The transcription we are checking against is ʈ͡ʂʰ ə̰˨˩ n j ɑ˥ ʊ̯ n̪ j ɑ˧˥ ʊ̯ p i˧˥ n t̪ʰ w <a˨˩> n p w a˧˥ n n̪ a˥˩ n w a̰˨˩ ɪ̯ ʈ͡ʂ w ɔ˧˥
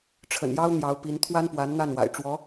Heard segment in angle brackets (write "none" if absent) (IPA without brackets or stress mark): a˥